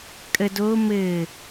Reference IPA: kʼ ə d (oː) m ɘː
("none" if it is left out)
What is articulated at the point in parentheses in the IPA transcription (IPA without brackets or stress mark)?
oː